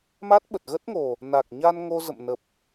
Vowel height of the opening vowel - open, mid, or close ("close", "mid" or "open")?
open